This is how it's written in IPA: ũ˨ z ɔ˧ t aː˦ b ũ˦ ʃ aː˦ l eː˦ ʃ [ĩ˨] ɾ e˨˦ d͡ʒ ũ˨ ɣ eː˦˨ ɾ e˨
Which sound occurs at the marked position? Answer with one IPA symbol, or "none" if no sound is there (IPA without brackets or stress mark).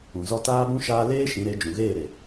ĩ˨˦